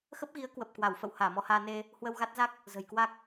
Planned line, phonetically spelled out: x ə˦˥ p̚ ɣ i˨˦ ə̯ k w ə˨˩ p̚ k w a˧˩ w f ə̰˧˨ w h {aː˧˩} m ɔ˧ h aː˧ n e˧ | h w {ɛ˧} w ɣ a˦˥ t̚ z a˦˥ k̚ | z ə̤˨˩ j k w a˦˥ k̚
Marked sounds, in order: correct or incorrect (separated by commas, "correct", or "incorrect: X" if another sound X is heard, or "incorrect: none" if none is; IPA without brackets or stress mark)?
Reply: correct, incorrect: ə˧